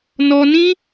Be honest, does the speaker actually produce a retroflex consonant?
no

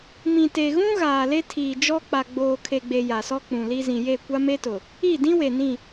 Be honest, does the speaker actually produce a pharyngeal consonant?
no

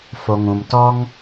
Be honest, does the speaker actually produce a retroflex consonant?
no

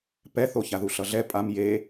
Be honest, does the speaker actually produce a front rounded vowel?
no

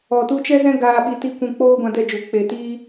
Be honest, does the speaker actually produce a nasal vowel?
yes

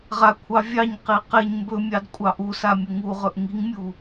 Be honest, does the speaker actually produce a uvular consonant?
yes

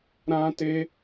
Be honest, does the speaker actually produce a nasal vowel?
yes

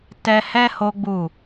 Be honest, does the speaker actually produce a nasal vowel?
no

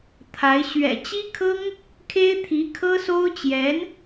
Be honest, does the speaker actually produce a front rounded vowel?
no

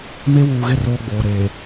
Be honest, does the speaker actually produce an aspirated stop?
no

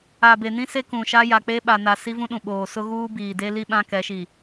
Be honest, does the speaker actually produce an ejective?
no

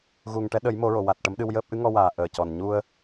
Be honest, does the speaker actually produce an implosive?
yes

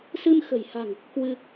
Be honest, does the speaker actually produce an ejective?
no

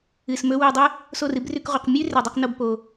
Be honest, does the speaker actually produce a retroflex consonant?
no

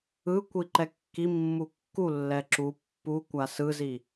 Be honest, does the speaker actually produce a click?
yes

